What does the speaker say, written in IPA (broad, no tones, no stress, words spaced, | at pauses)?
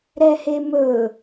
ɾɛhemɵ